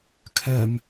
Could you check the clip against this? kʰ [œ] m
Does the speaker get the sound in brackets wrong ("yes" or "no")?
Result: no